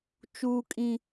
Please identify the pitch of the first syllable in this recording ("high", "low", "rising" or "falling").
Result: low